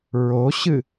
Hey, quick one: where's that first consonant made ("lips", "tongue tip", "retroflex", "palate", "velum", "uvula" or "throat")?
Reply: tongue tip